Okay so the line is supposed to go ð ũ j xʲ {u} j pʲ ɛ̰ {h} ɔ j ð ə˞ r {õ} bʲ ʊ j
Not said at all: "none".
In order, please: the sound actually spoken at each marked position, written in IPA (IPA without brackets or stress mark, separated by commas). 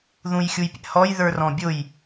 u, h, ɔ̃